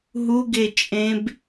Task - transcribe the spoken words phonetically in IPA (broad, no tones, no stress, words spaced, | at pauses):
ɦuɡet͡ʃʼẽb